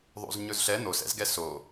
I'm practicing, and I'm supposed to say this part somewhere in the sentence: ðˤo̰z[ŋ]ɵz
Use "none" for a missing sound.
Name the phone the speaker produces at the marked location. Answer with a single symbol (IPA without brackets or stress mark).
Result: ɲ